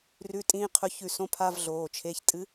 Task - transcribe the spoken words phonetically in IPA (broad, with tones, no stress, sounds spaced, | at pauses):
r ʉ˧˥˧ tʼ ĩː˧˥˧ qʰ ɵ˧˥˧ ç ʉ˦˨ s õ˧˥˧ pʰ a˧˥˧ v ɮ oː˩˧˩ t͡ʃʰ e˧˥˧ ç tʼ ɨ˧˥